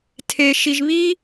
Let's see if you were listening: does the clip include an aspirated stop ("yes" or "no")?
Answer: yes